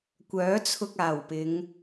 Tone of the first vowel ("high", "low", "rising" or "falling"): rising